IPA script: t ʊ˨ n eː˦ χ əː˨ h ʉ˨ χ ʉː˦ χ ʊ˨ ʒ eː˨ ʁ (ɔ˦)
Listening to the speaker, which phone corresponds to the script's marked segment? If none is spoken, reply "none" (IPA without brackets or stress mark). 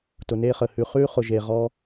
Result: ɔ˦